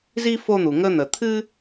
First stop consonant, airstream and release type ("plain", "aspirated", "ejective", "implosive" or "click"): aspirated